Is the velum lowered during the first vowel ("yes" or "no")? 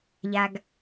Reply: no